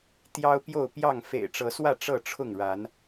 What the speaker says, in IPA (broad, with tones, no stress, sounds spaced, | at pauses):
t̪ j ɑ˦ ʊ̯ p j o˥˨ ʊ̯ p j ɑ˥˨ ŋ f ḛ˨˩ ɪ̯ ʈ͡ʂ ɤ˨˦ s w ä˥˨ ʈ͡ʂ ɤ˥˨ ʈ͡ʂʰ ʊ˥˨ ŋ ɻ a˨˦ n